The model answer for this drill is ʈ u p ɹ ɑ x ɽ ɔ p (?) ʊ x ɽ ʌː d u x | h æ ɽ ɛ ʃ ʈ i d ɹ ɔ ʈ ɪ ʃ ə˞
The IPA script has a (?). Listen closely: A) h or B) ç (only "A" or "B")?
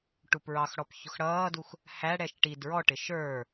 B